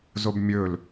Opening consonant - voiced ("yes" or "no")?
yes